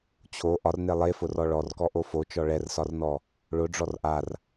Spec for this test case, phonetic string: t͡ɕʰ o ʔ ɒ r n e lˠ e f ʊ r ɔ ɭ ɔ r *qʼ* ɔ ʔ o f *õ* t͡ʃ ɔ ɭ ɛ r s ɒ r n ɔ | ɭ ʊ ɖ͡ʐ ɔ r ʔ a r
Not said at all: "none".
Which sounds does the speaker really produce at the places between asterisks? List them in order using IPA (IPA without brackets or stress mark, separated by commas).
k, o